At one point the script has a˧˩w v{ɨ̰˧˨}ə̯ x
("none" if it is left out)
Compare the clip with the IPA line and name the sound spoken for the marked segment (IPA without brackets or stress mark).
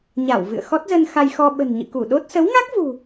ɨ̰˧˨